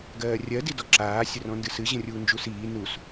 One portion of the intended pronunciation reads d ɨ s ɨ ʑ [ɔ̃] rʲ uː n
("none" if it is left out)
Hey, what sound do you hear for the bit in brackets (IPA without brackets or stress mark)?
ə̃